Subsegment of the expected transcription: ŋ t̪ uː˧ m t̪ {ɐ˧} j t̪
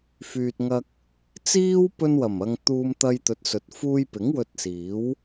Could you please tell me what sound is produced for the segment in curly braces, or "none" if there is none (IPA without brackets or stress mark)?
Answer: ɐ˧